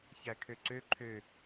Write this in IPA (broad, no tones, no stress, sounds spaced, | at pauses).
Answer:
ç æ kʰ ø ǀ ø ǃʰ ø